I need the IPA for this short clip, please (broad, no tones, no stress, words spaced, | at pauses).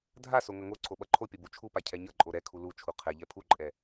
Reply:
dʱaso ŋʌŋoǀʰo ɓʌǃʰopʲʌ but͡ʃʰupa cʰɛɲʌǃʼo ɾɛ kʰulut͡ʃʰu qʰɛʎɛ pʰuǃʼɛ